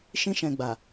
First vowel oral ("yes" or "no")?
no